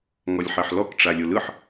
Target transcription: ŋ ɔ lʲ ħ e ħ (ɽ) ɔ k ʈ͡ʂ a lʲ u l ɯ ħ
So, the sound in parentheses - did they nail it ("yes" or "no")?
no